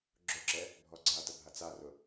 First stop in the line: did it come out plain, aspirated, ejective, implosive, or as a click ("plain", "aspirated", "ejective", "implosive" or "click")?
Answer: click